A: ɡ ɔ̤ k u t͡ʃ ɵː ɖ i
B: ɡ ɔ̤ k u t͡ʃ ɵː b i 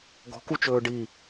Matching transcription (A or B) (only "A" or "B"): A